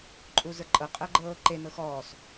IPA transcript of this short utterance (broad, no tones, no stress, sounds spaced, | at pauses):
ǃʼ u z ə˞ ǃʼ ɤ qʼ əː ɡ͡ǃ ɤː ǃ e n ɤ x ɔː s